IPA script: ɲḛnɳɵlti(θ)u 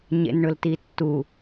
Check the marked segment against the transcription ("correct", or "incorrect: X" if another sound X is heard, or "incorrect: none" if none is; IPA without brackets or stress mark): incorrect: tː